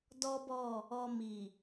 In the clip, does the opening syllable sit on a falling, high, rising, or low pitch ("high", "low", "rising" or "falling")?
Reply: high